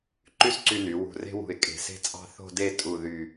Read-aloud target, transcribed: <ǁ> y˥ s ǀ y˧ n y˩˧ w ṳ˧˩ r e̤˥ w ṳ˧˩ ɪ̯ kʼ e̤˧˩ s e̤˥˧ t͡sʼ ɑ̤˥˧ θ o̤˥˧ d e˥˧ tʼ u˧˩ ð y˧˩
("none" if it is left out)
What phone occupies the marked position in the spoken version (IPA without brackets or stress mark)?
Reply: ǃ